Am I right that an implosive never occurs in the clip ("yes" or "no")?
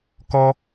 yes